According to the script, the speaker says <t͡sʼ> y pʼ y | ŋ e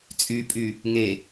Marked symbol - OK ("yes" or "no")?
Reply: yes